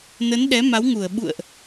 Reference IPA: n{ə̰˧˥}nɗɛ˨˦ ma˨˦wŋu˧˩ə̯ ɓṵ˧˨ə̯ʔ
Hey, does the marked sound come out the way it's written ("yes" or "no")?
no